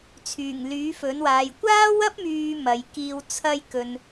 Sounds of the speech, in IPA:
t͡sʰ yː˨˩ ŋ l yː˨˥ f ɵ˨˥ n w aː˨ j kʷ aː˥ w ɐ˥ p̚ m yː˨ m ɐ˨˧ j k iː˧ w t͡sʰ ɐ˥ j k ɵ˨ n

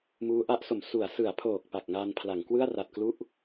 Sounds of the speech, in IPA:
m uː˦˥ ʔ a˦˥ ʔ s o˩˦ m s u˩˦ a̯ s ɯ˩˦ a̯ pʰ oː˨˩ k̚ p a˨˩ k̚ ŋ aː˧ n pʰ l a˩˦ ŋ k w ɯ˥˩ a̯ r a˨˩ t̚ k l u˥˩ ʔ

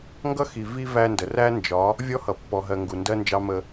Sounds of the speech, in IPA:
ŋ ɡ ʌ˦ x i˨ v i˦ v æ˦ n d ə˨ r æ˦ n d͡ʒ ɒ˨˦ | vʲ ɔ˦ h ʌ˨ pː ɔ˨ ɦ ɜ˨ ŋ ɡ u˨ n d ɜ˦ n d͡ʒ ɑ˦ m ə˦

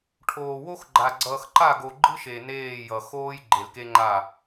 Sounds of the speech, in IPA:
ʈʰ oː˨ w o˦ x ɡ͡ǃ a˨ ɡ͡ǀ ʌː˨ x ǃ a˦˨ ɡ o˨ ɡ͡ǃ ɯ˦ ʃ e˨ n eː˦˨ j ʌ˨ x oː˦ j ɡ͡ǃ e˨ l k e˦ ŋ͡ǃ a˦˨

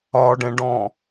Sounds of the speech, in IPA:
ɒ ɖ ɛ̃ ɖ ɔ̃

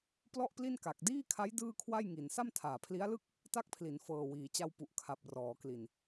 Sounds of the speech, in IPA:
p l ɔ˥˩ ʔ p l i˥˩ n k a˨˩ k̚ d iː˥˩ kʰ a˦˥ j d ɯː˥˩ kʰ w a˥˩ j ŋ i˩˦ n s a˥˩ m tʰ aː˨˩ pʰ l i˦˥ a̯ l ɯ˥˩ k̚ | t a˦˥ k̚ pʰ l i˩˦ n f ɤː˨˩ w iː˩˦ t͡ɕ a˧ w p u˨˩ ʔ kʰ a˨˩ p̚ r ɔː˩˦ k l i˨˩ n

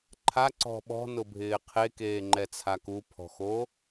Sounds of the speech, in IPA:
ǃʰ a ǀ ɔ̤ ɓ ɔ̤ n ʊ bʱ ɪː qʰ e k eː ŋ͡ǃ ɛ t͡sʰ a k u pʰ ɔ̤ x o

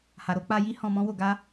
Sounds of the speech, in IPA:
h a˨ ɾ o˧ k͡p a˧ j i˦ h ɔ̃˧ m ɔ̃˦ w o˧ ɡ a˦

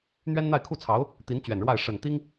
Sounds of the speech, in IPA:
n̪ ɥ ɛ˥ n n̪ a˥˧ ɪ̯ kʰ u˥˩ t͡sʰ ɑ˧˥ ʊ̯ | t̪ i˧˥ n t͡ɕ ɥ ɛ˨˩ n ɻ w a˥˩ ɪ̯ ʂ ə˨˩ n t̪ i˥ ŋ

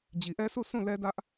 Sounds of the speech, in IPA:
d͡ʑ i˨ ʔ ɛ˦ sʰ u˦˨ s ũ˦˨ l ɛ˦ d ä˦ ʔ

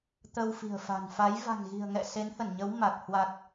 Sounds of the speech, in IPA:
t̪ ə˧ w f i̤˨˩ ə̯ f a̤˨˩ n f a˨˦ j v a̤˨˩ ŋ ɣ i̤˨˩ ə̯ ŋ ɛ̰˧˨ s e˨˦ n h ə˧˩ n ɲ ə˨˦ w m a˨˩ k̚ h w a˨˩ k̚

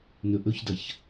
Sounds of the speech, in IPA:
n ɵ ʔ ɵ ç d ɐ ç

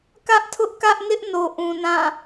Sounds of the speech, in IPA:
k ä˦ ʔ tʰ ʊ˦ ʔ k ä˦ ʔ n ɪ˦ ʔ n o˨ ʔ ũ˨ n ã˦˨

